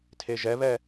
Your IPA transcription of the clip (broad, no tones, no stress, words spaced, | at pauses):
tʰeʒɛβɛ